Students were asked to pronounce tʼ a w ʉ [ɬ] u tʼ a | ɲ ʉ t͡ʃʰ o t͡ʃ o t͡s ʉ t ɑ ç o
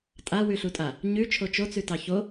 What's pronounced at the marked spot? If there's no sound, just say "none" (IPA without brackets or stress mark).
ɬ